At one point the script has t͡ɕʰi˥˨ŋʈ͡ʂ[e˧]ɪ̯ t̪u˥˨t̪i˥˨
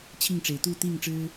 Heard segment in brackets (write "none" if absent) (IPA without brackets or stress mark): e˩